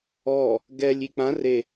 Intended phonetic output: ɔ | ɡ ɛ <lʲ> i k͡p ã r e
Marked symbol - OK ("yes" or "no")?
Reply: yes